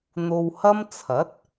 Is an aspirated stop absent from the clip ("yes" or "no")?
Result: no